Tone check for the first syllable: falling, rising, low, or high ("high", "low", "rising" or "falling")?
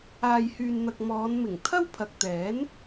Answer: low